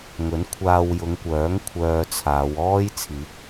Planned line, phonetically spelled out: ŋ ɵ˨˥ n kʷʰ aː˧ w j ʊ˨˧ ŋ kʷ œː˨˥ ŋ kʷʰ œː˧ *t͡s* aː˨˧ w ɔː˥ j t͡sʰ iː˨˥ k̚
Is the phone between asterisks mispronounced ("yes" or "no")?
yes